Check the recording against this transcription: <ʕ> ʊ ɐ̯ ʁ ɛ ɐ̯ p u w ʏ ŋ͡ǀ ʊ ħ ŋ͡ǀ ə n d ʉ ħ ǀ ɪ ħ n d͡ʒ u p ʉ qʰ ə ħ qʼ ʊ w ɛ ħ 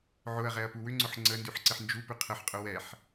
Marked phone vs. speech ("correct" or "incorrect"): correct